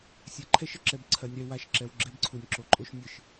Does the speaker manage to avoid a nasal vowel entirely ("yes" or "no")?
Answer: yes